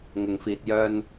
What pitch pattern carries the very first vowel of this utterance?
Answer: low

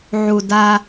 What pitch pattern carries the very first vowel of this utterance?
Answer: low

